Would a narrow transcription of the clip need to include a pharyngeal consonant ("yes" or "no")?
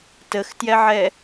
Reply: yes